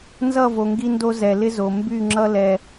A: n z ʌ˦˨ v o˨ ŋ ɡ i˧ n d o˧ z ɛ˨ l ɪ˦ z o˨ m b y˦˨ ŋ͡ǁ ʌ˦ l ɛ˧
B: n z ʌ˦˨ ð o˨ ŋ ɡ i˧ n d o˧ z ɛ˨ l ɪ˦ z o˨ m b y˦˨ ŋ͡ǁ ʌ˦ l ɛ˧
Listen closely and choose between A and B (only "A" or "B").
A